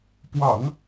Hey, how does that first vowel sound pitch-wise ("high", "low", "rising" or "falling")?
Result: low